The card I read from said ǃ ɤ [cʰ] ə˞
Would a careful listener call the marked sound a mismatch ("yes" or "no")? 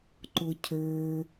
no